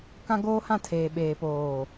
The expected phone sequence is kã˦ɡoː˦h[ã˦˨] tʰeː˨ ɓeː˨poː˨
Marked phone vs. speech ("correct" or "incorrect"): correct